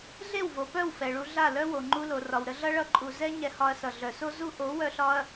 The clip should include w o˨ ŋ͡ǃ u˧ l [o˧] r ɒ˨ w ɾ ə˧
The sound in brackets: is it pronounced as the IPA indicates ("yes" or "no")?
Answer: no